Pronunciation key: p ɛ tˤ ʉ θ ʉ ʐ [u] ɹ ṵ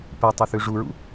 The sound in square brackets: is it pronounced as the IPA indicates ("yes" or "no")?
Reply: yes